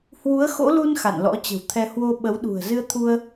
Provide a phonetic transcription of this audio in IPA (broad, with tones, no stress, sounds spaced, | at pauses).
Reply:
h w u˨˦ ə̯ x o̰˧˥ l u˧ n x a̰˧˨ n l ɔ̰˧˥ t͡ɕ ə̤˨˩ w t̪ʰ ɛ˧ h w o˧ ɓ ə˨˦ w ɗ ṳ˨˩ ə̯ z ɨ˧ ə̯ t̪ʰ u˧ ə̯